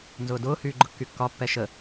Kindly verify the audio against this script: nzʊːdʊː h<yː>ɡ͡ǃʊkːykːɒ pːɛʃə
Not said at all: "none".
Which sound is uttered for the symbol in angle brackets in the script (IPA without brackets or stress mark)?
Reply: yː